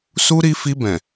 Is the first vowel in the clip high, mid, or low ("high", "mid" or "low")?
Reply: high